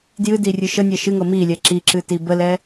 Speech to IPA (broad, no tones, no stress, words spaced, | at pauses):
djɨdirʲɨ ʃənʲɛ ʃɨŋɤ milʲɛ ǁiǁɨti bəlɛ